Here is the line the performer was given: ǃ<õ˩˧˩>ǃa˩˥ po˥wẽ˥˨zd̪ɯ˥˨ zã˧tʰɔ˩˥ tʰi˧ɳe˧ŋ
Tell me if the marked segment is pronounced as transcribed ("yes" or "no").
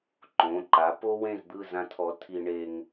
yes